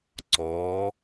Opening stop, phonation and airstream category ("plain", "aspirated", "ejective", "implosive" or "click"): click